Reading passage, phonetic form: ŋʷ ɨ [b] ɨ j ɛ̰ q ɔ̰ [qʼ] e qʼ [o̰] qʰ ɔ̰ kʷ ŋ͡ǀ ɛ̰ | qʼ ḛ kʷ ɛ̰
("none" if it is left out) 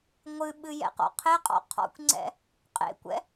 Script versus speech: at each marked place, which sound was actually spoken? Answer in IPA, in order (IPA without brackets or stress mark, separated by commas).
ɓ, qʰ, ɔ̰